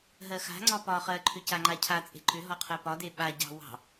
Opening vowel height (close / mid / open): mid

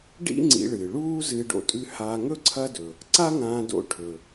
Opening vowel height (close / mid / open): close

